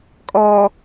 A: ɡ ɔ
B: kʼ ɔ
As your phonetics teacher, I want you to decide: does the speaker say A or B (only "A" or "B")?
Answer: B